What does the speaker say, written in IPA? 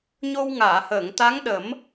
ɲ o˧ w ŋ aː˨˩˨ h əː˨˩˨ ŋ t̪ a˧˥ ŋ ɗ ə˨˩˦ m

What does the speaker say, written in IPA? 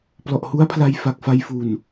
p l ɔ˨˩ ʔ h u˦˥ a̯ pʰ l a˧ j f a˨˩ k̚ f a˧ j f u˨˩ n

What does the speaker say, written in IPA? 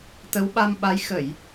t̪ ə˨˦ w ɓ a˧ m ɓ a˨˦ j x ə˧˩˨ j

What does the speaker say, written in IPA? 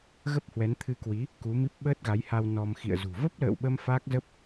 ɣ ə˦˥ p̚ h w ɛ˨˦ n t̪ʰ ɨ˧ k w i˨˦ | k u˨˦ m i˦˥ p̚ ɓ əː˦˥ t̚ ɣ a˨˦ j h a˧ w n ɔ˧ m x ḭ˧˨ ə̯ z ṳ˨˩ v ə˦˥ p̚ l ə̰ː˧˨ w ɓ ə˧ m f a˦˥ k̚ z ə˦˥ p̚

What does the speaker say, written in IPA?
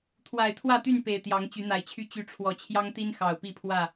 t̪ʰ w a˨˩ ɪ̯ t̪ʰ w ä˥˨ t̪ y˥˨ n p e˨˩ ɪ̯ t̪ j ɑ˨˦ ŋ t͡ɕ y˨˦ n̪ a˨˩ ɪ̯ t͡ɕʰ y˦ t͡ɕ y˨˦ ʈ͡ʂʰ w ɔ˨˩ t͡ɕʰ j ɑ˦ ŋ t̪ i˦ n x ɑ˨˩ ʊ̯ p i˥˨ pʰ w ä˥˨

